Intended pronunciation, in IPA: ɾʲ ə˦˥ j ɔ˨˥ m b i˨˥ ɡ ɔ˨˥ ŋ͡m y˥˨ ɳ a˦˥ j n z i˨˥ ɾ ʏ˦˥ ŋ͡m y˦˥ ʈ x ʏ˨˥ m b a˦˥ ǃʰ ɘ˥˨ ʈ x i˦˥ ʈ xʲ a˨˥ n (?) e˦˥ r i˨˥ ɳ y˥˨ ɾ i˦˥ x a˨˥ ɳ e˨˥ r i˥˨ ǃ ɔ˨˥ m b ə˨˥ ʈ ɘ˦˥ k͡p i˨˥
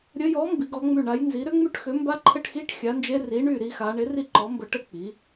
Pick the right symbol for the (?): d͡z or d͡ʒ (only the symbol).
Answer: d͡ʒ